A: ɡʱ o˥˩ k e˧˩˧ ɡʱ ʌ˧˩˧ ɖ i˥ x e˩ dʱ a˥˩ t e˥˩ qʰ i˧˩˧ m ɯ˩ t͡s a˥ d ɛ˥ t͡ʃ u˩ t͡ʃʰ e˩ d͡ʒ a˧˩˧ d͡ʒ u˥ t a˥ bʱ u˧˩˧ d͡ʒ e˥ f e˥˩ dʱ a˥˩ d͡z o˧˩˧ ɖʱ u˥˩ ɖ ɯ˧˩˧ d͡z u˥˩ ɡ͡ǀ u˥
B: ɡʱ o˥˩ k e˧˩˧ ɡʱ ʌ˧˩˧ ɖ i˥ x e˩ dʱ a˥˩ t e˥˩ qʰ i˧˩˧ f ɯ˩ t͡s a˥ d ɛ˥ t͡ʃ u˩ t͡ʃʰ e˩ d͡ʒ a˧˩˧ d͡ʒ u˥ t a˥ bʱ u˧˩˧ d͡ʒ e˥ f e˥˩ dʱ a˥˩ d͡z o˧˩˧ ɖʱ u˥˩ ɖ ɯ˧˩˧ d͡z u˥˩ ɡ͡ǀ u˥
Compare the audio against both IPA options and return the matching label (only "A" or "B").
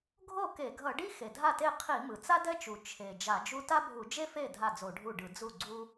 A